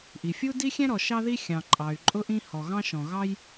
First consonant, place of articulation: glottal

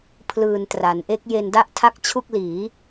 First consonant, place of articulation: labial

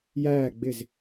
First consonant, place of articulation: palatal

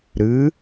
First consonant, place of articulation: alveolar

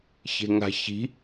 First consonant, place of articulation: palatal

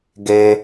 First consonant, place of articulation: velar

